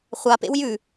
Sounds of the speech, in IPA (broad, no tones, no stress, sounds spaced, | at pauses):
χʷ a p ḛ w j ʉ